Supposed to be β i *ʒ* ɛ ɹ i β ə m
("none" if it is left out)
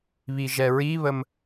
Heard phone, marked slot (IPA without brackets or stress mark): ʒ